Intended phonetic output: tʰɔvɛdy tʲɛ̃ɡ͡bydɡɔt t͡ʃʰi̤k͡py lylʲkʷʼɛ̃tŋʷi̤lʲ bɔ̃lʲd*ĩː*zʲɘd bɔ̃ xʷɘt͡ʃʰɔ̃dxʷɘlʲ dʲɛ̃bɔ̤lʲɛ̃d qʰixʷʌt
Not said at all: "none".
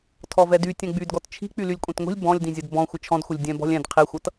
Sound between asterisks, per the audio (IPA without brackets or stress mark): ĩ